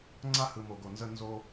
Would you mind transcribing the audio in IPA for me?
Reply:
ŋ͡ǀ a˧ h ɯ˨ m o˨ ɡ o˨ n z ə˧ n z o˧

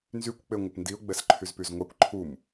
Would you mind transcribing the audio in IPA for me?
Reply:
n z y kʷ k͡p e ŋʷ ə p n d i ʊ̯ ɡ͡b ɛ s ǃʰ y z p y z ŋʷ a kʷ ǃʰ u m

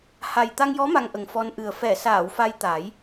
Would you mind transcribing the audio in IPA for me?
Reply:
h a˨˩ j t̪ a˧ ŋ j ɔ˧˥ m a˧ ŋ ʔ ə˨˩ ŋ f ɔ˧ n ʔ ɨ˨˩ ə̯ f ɛ˨˩˨ s aː˨˩˨ w f a˧ j t̪ a˨˩˦ j

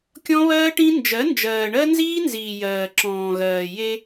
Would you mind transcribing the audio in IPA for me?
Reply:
kʲ ɔ̃˦ β ɜː˦ ʈ ĩ˦ n d͡ʒ ɜ˨˦ n d͡ʒ ɜː˨ ɳ ɜ˦ n z iː˦ n z iː˨ j ɜː˨ ǁ ɔ̃ː˨ ɣ ɜː˨ j e˦

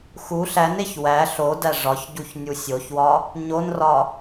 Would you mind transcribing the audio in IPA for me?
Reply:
x u ɬ æ n e ç w æ ɬ o d æ ʐ ɒ ç ɟ u ç nʲ u sʲ o ç w ɒ | ɲ o n r ɒ

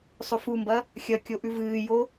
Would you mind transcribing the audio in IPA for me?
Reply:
sˤ ɵ f u m b ɐ | xʲ ɐ kʲ o ʔ ʉ v ɨː j o

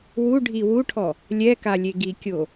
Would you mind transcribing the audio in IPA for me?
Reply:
w u ɖʱ i w u ʈʰ ɔ | lʲ ɛ k a lʲ e ɡ i kʲ o

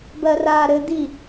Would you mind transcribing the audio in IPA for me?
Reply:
b ɜ r aː ɾ ɘ d̪ i

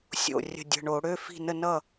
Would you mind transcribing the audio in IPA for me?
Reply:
sʲ o̰˧˩ rʲ ə̤˧˩ dʲ ə̤˩˧˩ ɳ o˧˩˧ ɽ ø˩˧˩ f i̤˧˩ n ə˧˩ n ʌ˧˩

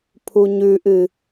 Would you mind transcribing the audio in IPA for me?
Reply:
pʰ u ɲ ʉ ʔ ɨ

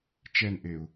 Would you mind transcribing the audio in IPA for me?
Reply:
t͡ʃ ɛ n ʔ e ʊ̯

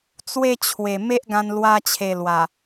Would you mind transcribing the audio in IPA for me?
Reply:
t͡s w e˦ t͡ɕʰ w e˨˩ m e˦ ʔ ɡ ã˧ n l w a˧ t͡ɕʰ e˨˩ l w a˨˩

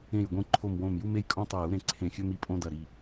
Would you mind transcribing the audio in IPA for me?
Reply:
ẽ˨˩ j ɡʷ ĩ˨˩ ǃʰ o˨˩ m w õ˨˩ m j u˧ m e˧ j kʼ õ˧ tˤ ɵ˨˩ j u˧ ɾ ẽ˨˩ ǀʰ ẽ˨˩ xʲ ɵ˧ m i˧ pʼ õ˧ d ɐ˨˩ ɾ i˨˩

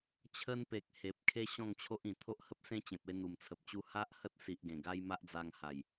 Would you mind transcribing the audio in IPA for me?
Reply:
t͡ɕʰ ə˧ n p e˨ k̚ h e˨ p̚ kʰ e˦ ɕ ɔ̃˥˧ ŋ t͡ɕʰ o˦ ʔ ĩ˨˩ t̪ʰ o˦ ʔ h ə˦ p̚ s ẽ˦ t͡ɕ ẽ˨ p̚ e˧ n̪ u˨˩ m t͡sʰ ə˨ p̚ t͡ɕ u˧ h a˦ ʔ h ə˦ t̚ s i˨ ʔ ɡ ẽ˨˩ ɡ a˦ j m a˦ ʔ d͡z a˧ ŋ h a˨˩ j

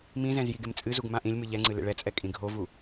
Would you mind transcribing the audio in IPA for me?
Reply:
m ĩ z ɛ̃ z j i ɡ e m t͡sʼ ɨ z u ɡ m ã ʔ ĩ lʲ m ɨ ʎ ɛ ŋ͡ǀ ɨ l ḛ ɭ ɛ t͡sʼ ɛ kʼ ĩ ɡʱ o v u

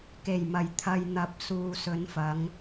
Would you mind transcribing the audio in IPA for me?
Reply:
k e˨˩ j m ɐ˨˩ j t̪ʰ ɐ˨ j n̪ ɐ˨˥ p̚ s uː˨ s ɵ˨˧ n f ɐ˨˧ ŋ

